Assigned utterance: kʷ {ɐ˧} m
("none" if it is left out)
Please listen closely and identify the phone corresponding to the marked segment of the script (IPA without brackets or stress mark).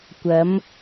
ɐ˨˥